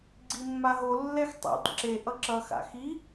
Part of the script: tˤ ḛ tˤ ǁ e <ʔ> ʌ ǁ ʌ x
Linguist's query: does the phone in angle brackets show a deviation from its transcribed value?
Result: no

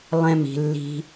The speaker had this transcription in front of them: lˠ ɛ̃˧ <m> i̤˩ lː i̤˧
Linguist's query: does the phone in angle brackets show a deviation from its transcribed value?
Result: no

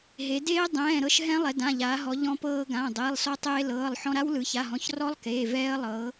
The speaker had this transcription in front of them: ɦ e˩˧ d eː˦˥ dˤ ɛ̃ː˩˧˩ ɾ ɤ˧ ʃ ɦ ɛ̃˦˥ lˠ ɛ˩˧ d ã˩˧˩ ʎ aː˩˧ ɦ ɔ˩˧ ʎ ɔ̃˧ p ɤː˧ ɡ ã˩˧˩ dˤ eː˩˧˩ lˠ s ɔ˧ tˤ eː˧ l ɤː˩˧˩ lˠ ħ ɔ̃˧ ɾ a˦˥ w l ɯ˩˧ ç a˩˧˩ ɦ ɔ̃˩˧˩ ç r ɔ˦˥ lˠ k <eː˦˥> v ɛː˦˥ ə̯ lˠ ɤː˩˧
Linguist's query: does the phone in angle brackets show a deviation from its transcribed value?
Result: yes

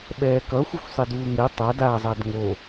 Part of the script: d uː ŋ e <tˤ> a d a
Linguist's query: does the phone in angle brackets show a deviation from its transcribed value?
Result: no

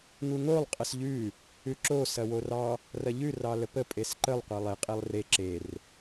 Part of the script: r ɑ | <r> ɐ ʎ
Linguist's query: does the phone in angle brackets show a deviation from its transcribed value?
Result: no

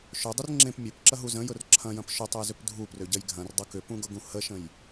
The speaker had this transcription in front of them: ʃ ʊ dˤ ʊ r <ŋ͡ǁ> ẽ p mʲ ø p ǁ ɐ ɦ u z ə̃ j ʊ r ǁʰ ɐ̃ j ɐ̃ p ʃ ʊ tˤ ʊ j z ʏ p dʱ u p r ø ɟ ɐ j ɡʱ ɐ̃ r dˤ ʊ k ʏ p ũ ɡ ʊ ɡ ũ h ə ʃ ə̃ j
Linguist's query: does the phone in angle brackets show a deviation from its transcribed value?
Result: no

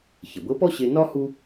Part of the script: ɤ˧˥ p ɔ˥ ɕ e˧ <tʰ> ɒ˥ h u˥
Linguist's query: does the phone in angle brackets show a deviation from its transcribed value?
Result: yes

